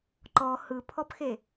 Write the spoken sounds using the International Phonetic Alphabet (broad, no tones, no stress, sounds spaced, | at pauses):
ǃ ɔ h ɯ pʰ ɔ p x e